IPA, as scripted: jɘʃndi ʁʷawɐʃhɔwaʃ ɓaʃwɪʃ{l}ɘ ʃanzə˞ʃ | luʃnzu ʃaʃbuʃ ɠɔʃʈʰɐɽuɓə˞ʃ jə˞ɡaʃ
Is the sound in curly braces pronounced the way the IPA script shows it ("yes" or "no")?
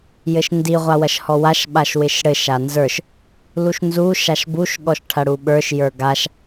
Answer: no